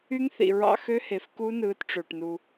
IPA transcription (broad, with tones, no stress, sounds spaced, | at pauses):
y˦˥ ŋ θ ḭ˩ ɹ ɑ̰˧ x ø˦˥ h e˩ f k u˦˥ n ɯː˨˥ t ʈ͡ʂ ø˩ ʈ n u˩